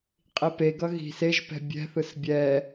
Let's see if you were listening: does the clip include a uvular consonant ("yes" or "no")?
yes